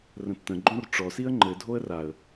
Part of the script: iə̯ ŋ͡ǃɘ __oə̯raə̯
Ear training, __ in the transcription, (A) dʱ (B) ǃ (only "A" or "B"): A